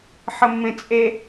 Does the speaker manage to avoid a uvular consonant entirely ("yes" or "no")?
yes